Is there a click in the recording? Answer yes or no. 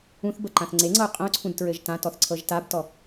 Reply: yes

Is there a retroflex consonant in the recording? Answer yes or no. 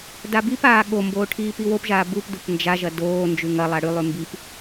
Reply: yes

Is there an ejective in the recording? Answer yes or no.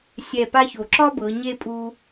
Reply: yes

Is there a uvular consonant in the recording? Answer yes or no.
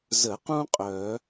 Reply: yes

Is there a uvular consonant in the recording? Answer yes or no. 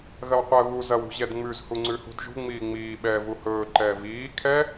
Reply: yes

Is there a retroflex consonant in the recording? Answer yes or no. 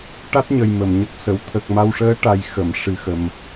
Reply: yes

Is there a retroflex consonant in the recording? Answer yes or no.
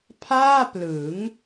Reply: no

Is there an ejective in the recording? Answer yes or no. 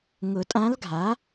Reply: yes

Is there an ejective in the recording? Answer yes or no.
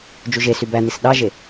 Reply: no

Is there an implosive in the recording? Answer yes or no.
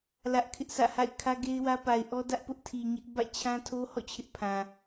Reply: no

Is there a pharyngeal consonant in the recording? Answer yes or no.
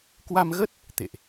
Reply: no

